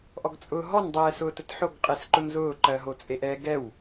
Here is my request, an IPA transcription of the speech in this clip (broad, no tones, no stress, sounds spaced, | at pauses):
ʔ ɔ ɡ t͡sʼ ʊː ɦ ɔ n dˤ ɛː s ʊː t ə t ħ o ɡ qʼ e s ǃ ʊ n z ʊː ǃ ɜ ɦ o t͡sʼ e ʔ ɛ ɡ ɛ w